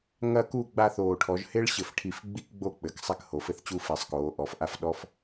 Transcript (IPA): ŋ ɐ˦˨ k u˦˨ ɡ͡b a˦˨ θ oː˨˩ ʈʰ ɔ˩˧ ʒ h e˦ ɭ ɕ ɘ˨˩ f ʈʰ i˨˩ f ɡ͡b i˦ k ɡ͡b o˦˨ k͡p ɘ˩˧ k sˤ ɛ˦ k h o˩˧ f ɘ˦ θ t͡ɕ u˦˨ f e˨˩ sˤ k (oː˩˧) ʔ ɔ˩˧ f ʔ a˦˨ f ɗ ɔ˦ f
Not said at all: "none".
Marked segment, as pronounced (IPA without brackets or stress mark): oː˩˧